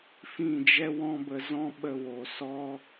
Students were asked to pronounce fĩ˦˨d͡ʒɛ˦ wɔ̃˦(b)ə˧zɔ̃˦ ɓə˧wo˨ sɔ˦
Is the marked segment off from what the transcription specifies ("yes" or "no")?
no